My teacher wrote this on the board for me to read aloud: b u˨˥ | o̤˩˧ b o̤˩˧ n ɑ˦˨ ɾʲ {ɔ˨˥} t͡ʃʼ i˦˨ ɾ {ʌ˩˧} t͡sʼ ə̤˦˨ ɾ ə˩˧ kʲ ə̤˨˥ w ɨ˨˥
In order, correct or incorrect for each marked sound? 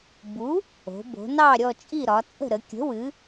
incorrect, incorrect

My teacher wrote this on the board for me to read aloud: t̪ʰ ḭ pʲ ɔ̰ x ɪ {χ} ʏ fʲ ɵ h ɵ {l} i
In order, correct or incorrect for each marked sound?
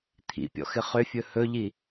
correct, incorrect

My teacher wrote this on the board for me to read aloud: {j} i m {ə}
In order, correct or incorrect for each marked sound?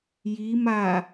correct, incorrect

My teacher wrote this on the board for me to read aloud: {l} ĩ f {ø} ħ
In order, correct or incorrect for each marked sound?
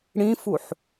incorrect, incorrect

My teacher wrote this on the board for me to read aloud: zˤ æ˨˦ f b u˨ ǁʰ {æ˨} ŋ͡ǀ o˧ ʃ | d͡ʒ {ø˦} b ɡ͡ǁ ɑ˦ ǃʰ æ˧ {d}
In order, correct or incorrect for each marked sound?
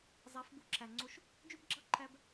correct, correct, incorrect

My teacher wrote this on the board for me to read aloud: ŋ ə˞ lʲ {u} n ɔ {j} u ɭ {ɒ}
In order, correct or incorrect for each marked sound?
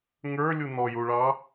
correct, correct, incorrect

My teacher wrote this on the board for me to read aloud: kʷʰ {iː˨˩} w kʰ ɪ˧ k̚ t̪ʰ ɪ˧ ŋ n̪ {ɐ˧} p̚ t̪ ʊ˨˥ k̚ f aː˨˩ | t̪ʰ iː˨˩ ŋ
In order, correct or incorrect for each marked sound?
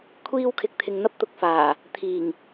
incorrect, incorrect

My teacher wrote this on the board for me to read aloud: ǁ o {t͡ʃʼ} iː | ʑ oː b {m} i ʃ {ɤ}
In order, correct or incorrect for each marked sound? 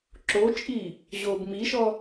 correct, correct, incorrect

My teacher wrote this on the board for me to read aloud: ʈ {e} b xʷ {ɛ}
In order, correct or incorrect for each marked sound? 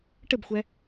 incorrect, correct

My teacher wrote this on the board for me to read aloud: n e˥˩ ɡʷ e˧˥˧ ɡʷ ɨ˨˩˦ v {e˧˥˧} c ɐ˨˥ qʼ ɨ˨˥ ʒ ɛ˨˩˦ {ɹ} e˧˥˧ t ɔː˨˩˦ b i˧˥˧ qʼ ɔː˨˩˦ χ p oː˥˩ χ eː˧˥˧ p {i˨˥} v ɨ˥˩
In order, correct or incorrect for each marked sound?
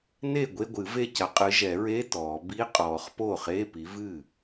incorrect, correct, correct

